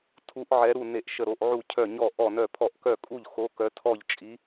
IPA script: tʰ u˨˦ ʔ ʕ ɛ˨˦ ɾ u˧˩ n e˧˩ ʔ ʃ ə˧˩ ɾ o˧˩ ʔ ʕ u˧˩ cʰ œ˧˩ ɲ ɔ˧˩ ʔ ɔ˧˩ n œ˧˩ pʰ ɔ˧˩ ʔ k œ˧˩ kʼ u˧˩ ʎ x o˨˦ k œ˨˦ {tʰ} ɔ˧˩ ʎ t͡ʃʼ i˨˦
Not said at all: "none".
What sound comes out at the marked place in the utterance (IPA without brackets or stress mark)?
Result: tʰ